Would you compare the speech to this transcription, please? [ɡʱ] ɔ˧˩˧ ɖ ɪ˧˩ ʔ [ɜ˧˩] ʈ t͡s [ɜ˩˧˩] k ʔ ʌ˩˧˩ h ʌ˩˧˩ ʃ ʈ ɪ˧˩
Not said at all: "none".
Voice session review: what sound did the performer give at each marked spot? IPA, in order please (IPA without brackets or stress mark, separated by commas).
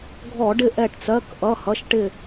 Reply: ɡʱ, ɛ˧˩, ɜ˩˧˩